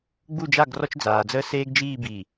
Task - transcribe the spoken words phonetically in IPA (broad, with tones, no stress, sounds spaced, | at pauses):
ɡ͡b u˦˨ d͡ʒ a˦˨ ɡ r ɔ˦ t͡ʃ d͡z aː˨ d͡z əː˦ s eː˦ ɡ d͡ʒ iː˦˨ b i˨